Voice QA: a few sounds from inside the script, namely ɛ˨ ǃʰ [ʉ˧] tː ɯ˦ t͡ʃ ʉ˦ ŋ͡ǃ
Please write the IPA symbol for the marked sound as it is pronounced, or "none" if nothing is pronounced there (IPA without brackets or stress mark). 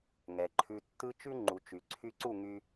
ʉ˧